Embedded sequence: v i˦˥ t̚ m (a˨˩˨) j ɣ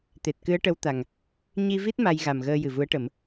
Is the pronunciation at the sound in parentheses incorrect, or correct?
incorrect